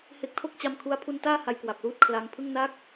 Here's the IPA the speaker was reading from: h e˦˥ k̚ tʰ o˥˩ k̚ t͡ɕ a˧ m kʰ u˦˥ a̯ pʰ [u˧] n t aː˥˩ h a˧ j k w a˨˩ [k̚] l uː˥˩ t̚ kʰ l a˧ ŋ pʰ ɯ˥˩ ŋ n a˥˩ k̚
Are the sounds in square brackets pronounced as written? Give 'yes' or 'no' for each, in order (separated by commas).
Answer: yes, no